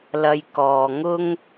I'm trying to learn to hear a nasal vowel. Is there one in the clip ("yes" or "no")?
no